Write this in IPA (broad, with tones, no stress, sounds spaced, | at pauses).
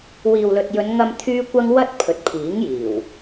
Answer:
w iː˨ w l ɵ˨ t̚ j ɵ˨˧ n ŋ ɐ˧ m t̪ʰ yː˥ kʷ ɐ˥ ŋ w ɐ˥ t̚ pʰ ɵ˨ t̚ pʰ iː˨˥ ŋ j iː˨˩ w